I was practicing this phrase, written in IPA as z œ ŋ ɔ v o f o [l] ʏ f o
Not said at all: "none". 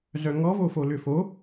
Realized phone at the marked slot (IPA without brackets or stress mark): l